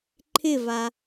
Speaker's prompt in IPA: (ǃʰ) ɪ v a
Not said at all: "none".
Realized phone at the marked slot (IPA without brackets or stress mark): ǃʰ